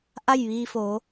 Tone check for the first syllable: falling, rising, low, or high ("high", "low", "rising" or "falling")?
falling